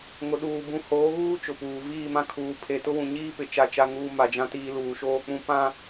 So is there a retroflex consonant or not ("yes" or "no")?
no